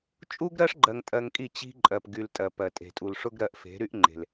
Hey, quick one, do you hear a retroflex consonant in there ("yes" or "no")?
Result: yes